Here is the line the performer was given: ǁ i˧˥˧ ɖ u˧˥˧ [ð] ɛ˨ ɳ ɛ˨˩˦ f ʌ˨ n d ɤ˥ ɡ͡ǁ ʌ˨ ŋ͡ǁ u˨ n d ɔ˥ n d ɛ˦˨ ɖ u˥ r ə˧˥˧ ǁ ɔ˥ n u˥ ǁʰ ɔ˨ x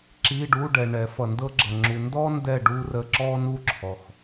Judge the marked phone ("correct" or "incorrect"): incorrect